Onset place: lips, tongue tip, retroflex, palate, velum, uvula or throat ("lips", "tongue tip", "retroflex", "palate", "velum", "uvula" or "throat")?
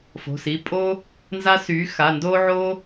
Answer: lips